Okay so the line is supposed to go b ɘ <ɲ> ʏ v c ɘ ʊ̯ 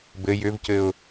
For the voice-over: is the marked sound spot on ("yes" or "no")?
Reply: no